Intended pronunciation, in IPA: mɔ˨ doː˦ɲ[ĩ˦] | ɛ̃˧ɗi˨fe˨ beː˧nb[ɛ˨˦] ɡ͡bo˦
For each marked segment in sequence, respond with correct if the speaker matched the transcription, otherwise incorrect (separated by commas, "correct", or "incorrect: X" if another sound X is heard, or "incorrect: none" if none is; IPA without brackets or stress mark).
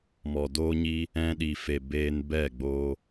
incorrect: i˦, incorrect: ɛ˦˨